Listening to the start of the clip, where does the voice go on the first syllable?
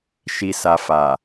low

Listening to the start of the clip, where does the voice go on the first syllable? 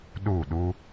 falling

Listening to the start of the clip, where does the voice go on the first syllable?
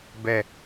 falling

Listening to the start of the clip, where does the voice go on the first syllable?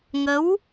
rising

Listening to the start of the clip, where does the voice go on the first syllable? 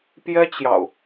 high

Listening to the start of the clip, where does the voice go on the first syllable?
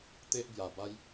high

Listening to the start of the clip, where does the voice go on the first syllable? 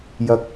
high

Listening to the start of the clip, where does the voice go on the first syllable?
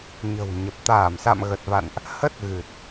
low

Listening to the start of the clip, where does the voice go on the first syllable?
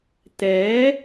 rising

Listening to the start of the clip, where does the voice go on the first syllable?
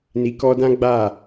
low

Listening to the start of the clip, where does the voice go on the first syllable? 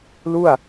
falling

